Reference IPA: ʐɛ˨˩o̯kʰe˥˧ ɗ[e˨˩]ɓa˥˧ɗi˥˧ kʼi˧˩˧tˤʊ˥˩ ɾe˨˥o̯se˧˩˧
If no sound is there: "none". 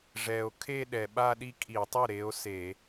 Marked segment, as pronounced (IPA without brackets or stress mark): ɛ˨˩